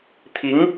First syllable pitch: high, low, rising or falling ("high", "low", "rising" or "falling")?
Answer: rising